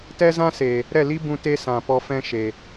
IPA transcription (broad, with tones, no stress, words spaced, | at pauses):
tɛ˦zã˦seː˨ | ɾɛ˦˨li˦bũ˧ te˦ sã˨ pɔ˧ fɛ̃˦ʃe˨